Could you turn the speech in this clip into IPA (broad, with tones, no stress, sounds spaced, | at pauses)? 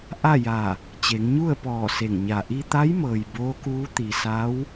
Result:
ʔ a˥˨ j a˧˩ | t͡ɕ e˩˧ ŋ ɲ u˥˨ ə̯ p ɔː˧˩ s e˧˩ ŋ ɲ a˧˩ ʔ i˧ t̪ a˧˥ j m ɤː˩ j b oː˧˥ k uː˧˥ t̪ i˩ s a˧˥ w